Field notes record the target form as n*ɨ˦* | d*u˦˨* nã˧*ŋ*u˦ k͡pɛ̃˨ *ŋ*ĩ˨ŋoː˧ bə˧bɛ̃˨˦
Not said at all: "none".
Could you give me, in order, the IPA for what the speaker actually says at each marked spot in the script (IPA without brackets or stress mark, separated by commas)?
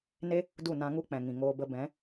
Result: e˦, u˦˨, ŋ, ŋ